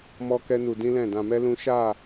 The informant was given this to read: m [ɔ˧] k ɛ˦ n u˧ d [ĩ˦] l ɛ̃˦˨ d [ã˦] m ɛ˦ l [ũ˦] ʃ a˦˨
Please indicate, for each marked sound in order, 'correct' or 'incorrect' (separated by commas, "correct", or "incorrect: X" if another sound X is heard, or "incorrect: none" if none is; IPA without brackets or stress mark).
incorrect: ɔ˦, correct, incorrect: ã˧, correct